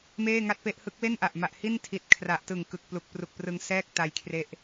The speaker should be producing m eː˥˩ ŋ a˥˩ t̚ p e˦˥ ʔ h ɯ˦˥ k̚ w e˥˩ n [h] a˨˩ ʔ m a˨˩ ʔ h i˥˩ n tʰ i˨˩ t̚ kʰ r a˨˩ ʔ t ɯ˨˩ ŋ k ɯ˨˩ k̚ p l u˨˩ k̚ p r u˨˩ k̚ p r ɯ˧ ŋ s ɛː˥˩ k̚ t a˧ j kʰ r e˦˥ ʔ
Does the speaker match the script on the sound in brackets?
no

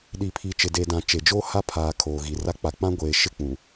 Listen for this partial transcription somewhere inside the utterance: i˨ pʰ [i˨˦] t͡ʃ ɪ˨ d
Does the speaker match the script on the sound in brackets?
no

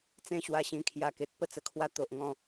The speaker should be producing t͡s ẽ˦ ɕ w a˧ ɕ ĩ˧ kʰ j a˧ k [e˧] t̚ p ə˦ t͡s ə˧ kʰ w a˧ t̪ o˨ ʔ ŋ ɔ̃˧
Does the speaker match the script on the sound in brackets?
no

